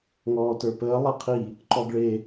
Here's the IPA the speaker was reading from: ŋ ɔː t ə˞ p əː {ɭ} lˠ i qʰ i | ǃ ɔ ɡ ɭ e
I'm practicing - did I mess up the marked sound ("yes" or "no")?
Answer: yes